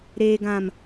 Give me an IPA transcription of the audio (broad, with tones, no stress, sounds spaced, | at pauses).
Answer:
ɾ eː˨ ɡ ã˨ m